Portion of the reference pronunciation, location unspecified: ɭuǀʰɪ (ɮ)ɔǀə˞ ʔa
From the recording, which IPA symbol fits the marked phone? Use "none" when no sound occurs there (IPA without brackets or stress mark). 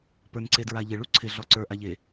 ɮ